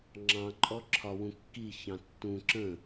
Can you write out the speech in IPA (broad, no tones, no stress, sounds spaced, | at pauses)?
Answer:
ŋ͡ǁ ɑ̃ ǃʼ ɔ ǁʰ ɒ w ũ kː i ç ɑ̃ tː ũ ǁ ə̃